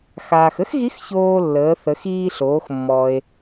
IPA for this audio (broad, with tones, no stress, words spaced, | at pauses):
xaː˩xə˥xɣi˧˥x çoː˧lːəː˩˧θə˩˧x iː˧ɬoː˩˧x mːɔ˩e̯